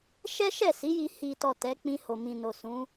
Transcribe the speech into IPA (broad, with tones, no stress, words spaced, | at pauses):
ʃɛ˦ ʃɛ˦˨ si˨˦ji˧ hi˨tɔ˨ tɛ˨˦k͡pĩ˧ ho˨mĩ˨no˨ sũ˨˦